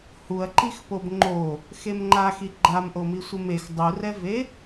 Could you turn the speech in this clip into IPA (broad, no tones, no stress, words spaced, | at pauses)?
huɐ̯ ǃixpobŋ͡ǃo | xemŋ͡ǃaxi ɡ͡ǃamʔomi sʷɪmex dˤurɛve